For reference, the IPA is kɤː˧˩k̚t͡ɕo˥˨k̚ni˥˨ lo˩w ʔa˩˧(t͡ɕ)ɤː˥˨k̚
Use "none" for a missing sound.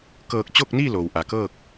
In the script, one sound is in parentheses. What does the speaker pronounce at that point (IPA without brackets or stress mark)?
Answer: k